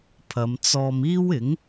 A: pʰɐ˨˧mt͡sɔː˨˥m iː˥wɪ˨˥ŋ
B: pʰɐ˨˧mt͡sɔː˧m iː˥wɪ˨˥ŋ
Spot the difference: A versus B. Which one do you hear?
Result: B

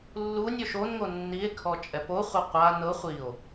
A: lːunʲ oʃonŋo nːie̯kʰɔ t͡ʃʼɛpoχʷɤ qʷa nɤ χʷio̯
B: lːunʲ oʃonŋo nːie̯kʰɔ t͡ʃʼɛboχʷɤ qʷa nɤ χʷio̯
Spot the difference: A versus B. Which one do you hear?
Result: A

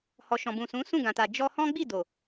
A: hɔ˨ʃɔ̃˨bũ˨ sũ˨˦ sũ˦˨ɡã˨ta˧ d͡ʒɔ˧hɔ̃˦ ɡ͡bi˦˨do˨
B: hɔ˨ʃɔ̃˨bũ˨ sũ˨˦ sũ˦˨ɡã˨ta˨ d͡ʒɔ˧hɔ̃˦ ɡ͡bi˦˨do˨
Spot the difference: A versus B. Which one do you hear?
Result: B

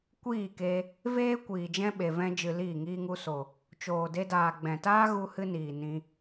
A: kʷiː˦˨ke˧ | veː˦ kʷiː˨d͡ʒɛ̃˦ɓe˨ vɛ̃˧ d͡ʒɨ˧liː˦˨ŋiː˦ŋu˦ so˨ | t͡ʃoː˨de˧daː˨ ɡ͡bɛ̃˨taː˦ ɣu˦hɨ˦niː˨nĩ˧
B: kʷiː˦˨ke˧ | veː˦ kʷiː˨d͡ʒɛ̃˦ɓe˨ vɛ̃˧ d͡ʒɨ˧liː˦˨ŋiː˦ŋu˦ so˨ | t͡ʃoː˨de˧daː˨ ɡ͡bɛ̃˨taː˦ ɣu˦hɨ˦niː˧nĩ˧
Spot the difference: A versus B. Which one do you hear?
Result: A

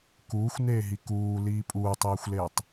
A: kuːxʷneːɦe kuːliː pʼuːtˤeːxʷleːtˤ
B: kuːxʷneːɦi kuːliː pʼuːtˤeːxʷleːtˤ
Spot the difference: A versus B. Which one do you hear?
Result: B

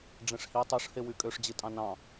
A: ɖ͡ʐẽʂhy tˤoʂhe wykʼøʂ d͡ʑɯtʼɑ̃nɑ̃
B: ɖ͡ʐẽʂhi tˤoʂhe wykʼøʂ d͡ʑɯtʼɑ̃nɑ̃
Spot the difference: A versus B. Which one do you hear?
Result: B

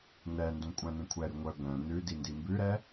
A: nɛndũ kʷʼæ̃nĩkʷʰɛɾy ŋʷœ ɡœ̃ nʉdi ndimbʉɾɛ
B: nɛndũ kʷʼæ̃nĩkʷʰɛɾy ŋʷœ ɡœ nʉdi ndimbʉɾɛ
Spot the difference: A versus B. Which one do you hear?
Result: A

